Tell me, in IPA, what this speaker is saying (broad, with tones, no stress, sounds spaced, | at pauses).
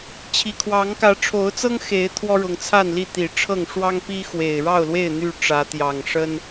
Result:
t͡ɕʰ i˨˩ kʰ w ɑ˨˦ ŋ k ä˨˦ ʈ͡ʂʰ o˨˦ ʊ̯ t͡s ɤ˦ ŋ x e˨˦ ɪ̯ t̪ʰ w ɔ˦ ɻ ʊ˨˦ ŋ t͡sʰ a˥˨ n l i˥˨ t̪ i˨˩ ʈ͡ʂʰ ɤ˥˨ ŋ ʂ w ɑ˦ ŋ p i˦ x w e˨˩ ɪ̯ ɻ ɑ˥˨ ʊ̯ l w e˥˨ ɪ̯ n̪ y˥˨ ʈ͡ʂ ä˨˦ t̪ j ɑ˨˩ ŋ ʂ ə˦ n